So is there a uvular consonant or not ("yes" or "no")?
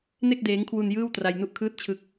no